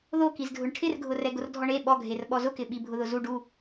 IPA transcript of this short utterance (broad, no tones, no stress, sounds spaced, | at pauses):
ð o k i z dʱ ʊ ɳ ʈʰ ɪ r ɡʱ ʊ r ɛ ɡ ʊ r dʱ ɔ ɳ e ɓ ɔ ɡʱ e r ɓ ɔ z ʊ k ɪ ɓ i bʱ ʊ ð ʊ z u ɖ u